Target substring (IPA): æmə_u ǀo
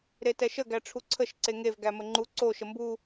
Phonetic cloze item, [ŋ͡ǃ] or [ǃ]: ŋ͡ǃ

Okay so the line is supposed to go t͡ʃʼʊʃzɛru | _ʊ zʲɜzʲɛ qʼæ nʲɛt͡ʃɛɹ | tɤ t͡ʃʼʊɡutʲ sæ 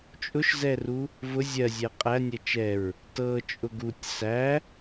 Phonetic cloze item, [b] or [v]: v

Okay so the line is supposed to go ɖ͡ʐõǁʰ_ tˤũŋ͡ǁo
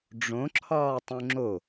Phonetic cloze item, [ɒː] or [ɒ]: ɒː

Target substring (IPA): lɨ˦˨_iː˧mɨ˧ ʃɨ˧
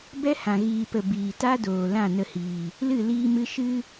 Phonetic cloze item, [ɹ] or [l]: l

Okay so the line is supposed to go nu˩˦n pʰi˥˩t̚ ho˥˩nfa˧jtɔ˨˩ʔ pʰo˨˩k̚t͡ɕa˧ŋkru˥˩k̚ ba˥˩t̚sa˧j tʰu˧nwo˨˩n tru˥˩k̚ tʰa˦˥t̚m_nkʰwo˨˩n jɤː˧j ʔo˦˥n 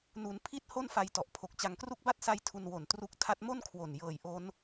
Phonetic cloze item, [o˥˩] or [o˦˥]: o˥˩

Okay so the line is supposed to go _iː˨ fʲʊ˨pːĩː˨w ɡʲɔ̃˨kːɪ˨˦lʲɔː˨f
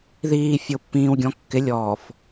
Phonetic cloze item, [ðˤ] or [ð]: ð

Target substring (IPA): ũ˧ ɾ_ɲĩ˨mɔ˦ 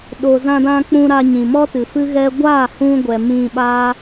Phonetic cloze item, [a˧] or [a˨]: a˧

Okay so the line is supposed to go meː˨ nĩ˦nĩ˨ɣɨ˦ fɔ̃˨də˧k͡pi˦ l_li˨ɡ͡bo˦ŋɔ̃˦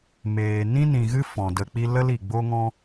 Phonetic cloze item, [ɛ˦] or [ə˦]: ə˦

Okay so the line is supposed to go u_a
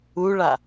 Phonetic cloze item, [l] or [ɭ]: ɭ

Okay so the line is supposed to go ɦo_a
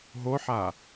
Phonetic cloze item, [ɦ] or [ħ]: ħ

